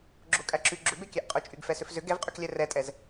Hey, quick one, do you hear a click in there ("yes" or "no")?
yes